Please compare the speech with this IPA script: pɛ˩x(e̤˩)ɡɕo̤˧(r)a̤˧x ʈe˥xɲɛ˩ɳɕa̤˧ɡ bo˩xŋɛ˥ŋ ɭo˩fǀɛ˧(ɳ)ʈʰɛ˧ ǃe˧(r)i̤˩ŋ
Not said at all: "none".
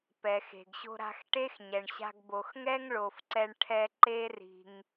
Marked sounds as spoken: e̤˩, ɾ, ɳ, r

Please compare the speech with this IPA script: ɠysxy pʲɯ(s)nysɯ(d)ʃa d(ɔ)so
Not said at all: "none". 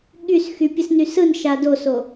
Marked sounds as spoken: s, n, o

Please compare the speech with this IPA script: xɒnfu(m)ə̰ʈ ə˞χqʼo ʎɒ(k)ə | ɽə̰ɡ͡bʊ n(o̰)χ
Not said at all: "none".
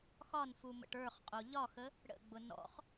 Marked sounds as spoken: m, x, ɔ̰

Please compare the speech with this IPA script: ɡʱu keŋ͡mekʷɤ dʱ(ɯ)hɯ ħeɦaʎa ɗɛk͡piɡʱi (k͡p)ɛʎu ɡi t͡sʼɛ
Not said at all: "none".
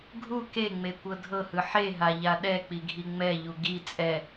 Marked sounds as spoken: ɤ, ŋ͡m

